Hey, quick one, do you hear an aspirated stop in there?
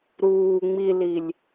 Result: no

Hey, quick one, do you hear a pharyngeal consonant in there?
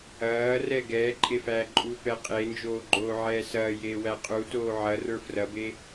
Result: yes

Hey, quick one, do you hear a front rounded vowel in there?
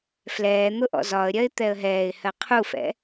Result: no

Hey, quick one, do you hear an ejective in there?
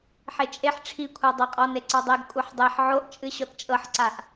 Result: yes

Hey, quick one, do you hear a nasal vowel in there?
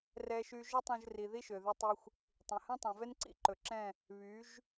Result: yes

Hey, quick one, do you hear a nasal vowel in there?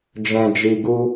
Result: yes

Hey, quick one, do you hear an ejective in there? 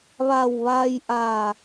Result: no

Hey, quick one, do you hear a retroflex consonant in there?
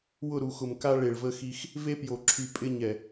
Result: yes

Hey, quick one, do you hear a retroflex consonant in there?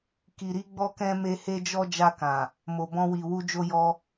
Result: no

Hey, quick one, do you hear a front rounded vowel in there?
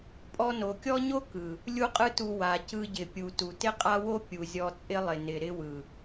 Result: no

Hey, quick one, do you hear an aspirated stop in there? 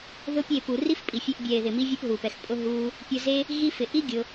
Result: no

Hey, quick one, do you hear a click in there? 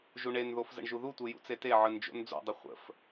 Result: no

